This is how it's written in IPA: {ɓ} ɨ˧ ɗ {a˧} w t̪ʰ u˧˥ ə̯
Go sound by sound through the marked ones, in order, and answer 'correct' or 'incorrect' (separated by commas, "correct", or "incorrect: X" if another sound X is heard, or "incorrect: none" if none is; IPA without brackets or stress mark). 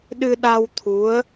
incorrect: ɗ, correct